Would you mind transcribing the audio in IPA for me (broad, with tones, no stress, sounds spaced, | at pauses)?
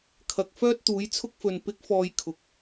kʰ ɐ˨ k̚ f œː˥ t̚ t̪ uː˨˥ j t͡sʰ ʊ˥ k̚ f ɵ˨ n p ɪ˨˥ k̚ f ɔː˨ j kʰ ʊ˨ k̚